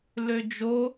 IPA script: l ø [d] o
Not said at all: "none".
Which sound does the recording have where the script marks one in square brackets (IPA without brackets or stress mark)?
d͡ʒ